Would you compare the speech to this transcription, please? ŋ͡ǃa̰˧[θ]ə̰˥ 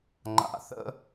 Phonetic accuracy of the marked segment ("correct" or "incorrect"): correct